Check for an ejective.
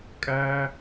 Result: present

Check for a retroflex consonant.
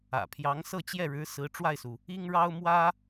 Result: present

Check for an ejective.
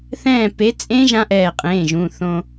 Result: present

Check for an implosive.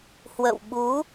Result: present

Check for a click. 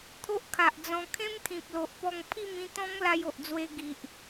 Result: absent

